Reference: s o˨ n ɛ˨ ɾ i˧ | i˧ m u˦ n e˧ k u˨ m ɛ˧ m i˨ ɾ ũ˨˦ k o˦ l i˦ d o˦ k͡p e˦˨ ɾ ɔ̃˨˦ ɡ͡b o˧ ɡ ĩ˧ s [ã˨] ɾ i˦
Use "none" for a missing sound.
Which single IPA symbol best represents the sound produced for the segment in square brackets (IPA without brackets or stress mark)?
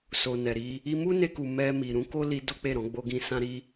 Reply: ã˦